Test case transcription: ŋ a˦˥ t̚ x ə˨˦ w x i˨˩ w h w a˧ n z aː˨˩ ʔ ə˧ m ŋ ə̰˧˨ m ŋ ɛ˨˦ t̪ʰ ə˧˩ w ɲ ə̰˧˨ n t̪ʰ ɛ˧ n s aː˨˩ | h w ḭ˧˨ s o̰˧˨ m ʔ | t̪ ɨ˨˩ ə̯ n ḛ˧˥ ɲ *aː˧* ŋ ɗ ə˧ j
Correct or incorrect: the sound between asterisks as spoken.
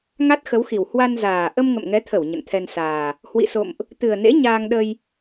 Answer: correct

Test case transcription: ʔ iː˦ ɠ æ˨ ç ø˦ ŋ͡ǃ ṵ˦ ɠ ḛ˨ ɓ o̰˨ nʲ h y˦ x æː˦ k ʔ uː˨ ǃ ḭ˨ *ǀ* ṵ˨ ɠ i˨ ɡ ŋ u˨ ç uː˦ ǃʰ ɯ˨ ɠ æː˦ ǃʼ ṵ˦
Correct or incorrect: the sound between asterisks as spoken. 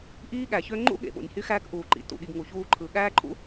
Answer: incorrect: t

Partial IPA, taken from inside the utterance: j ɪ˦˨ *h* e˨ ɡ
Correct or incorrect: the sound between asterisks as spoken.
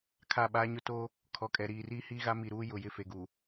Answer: incorrect: f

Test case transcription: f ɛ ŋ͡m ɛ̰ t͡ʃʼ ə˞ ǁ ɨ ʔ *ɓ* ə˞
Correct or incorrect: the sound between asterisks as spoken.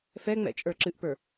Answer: incorrect: p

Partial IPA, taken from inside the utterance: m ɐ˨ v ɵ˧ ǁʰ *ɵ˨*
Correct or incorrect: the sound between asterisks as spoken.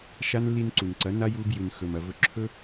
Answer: incorrect: ɵ˦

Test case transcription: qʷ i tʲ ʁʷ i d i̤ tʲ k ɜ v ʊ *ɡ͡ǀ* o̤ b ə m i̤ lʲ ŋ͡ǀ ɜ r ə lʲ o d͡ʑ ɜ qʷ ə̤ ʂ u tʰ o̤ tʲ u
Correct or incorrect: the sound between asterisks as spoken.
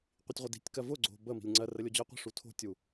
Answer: correct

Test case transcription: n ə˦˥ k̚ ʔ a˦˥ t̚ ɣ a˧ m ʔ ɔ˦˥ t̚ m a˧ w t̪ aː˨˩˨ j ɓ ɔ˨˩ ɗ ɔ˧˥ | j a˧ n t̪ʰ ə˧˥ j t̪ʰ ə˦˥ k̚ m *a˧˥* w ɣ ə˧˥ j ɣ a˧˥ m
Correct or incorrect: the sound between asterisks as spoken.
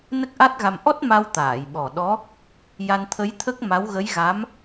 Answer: correct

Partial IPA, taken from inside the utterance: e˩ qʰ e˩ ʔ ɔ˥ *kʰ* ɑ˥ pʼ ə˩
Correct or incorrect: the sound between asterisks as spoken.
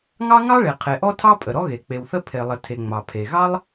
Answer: incorrect: tʰ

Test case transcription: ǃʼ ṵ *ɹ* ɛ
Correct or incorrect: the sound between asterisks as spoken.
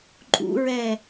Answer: correct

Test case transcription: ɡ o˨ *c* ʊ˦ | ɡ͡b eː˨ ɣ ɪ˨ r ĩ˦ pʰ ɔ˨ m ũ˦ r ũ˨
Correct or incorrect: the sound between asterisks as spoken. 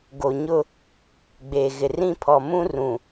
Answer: incorrect: ɲ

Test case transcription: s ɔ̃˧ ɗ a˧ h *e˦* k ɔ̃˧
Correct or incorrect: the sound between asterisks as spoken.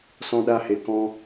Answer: incorrect: e˨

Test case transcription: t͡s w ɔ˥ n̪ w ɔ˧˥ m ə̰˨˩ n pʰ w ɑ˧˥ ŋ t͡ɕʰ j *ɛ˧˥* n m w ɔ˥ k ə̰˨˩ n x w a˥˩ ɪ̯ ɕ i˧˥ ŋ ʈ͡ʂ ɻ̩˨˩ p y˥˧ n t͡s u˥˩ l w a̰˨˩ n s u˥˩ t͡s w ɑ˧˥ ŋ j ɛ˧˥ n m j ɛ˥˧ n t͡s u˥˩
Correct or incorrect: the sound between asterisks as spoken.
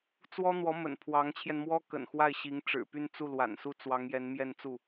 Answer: incorrect: ɛ˧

